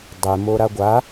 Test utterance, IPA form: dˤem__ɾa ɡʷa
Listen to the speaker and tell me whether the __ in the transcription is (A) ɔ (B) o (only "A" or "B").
B